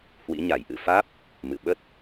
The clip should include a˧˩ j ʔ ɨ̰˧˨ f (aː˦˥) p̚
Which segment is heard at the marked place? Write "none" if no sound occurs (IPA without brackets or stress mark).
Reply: aː˦˥